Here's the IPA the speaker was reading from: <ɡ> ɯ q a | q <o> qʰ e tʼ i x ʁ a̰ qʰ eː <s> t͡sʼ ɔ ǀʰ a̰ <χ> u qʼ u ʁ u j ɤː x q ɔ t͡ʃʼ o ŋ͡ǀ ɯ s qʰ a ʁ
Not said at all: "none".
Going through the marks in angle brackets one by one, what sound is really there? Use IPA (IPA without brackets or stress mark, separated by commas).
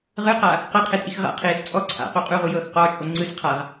ʁ, ɤ, s, q